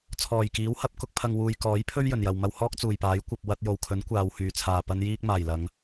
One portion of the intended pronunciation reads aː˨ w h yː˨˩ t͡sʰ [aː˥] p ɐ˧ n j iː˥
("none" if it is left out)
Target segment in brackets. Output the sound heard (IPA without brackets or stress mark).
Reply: aː˨˩